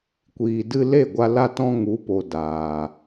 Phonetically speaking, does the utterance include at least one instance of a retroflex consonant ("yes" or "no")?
no